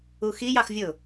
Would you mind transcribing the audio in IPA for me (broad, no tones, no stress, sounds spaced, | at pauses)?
u x i j ɑ x vʲ ʊ